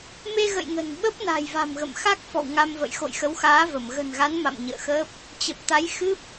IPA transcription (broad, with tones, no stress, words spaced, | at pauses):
me˧ɣə̰˧˨j ŋə̤˨˩n ɓə˦˥p̚na̤˨˩j va̤˨˩mɣə̰˧˨mxa˦˥k̚ fɔ̰˧˨wŋa˧mvə̰˧˨j xo̰˧˨jxə˨˦wxaː˨˦və˧˩m ɣə̤˨˩nɣa˨˦n ma̰˧˨m ɲə̰ː˧˨xəː˦˥p̚ | t͡ɕə˨˩p̚t̪a˨˦jxɨ˦˥p̚